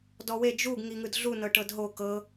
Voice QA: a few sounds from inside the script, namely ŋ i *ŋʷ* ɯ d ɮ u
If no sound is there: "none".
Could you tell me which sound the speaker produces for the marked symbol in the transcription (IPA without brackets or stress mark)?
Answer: ŋ